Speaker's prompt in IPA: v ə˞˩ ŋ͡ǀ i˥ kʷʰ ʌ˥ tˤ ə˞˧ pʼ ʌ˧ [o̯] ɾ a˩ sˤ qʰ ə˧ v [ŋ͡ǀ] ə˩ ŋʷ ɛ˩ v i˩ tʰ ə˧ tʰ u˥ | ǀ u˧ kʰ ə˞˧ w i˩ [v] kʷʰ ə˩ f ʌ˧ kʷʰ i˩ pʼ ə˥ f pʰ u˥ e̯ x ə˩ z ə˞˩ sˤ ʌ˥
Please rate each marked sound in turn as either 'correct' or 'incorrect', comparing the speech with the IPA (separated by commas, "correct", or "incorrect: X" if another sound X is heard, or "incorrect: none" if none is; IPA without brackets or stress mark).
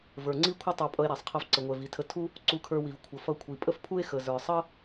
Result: incorrect: e̯, incorrect: ǀ, correct